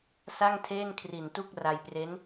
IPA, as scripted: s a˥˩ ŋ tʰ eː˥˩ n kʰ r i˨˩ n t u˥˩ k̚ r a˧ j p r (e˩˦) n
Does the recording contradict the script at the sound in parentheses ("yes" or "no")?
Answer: yes